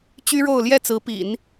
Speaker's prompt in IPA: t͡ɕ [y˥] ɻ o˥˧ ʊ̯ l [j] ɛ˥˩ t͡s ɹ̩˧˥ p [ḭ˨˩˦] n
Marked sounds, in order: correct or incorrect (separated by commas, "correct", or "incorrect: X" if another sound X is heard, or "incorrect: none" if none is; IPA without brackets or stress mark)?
correct, correct, correct